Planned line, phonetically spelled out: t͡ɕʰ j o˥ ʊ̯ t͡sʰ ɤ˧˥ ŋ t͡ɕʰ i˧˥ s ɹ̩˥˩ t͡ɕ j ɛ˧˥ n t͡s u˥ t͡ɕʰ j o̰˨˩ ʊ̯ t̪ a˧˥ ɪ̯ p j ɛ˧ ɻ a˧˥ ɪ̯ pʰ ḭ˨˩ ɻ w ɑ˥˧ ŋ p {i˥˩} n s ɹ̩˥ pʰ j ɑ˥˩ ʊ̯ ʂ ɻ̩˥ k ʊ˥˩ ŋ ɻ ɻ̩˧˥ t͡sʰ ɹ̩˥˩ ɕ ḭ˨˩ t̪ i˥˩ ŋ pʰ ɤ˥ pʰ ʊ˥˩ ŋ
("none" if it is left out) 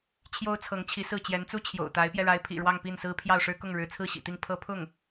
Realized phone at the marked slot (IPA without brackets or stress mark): i˥˩